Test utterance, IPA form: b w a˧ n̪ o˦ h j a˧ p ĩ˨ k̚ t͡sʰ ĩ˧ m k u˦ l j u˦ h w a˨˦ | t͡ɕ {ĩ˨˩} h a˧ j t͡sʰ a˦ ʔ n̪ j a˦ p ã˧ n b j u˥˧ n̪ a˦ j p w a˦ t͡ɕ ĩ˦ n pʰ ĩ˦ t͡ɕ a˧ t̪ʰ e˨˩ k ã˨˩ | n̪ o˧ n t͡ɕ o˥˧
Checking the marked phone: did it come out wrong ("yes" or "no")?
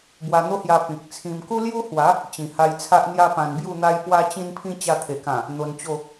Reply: no